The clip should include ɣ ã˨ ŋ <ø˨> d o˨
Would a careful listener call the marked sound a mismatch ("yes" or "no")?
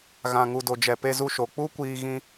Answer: yes